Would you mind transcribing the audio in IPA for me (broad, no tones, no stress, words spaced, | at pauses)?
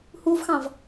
huvxɑ̃v